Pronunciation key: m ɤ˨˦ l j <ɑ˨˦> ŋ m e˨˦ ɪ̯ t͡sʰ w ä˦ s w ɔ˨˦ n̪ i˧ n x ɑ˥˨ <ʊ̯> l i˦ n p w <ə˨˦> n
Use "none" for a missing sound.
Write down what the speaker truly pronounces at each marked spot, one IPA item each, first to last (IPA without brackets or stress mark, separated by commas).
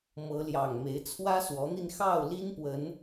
ɑ˨˩, ʊ̯, ə˨˦